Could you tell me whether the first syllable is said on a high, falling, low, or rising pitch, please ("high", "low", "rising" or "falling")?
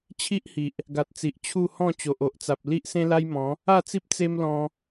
high